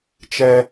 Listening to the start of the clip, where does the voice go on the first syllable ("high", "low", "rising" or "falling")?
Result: high